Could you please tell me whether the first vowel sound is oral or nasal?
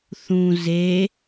nasal